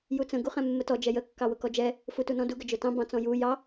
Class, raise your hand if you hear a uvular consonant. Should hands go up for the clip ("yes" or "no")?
yes